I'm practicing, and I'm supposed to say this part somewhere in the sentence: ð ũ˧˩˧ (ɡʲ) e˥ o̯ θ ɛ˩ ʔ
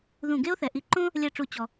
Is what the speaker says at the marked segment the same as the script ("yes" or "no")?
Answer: no